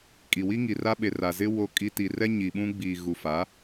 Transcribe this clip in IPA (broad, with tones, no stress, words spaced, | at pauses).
kʼi˨wi˦ŋi˨ra˦ ɓe˨ra˨ zɪ˦ wo˦kʼi˦ ti˨rɛ˦ ɲi˨ ɓũ˦ɡ͡biː˨ ɣu˨fa˨˦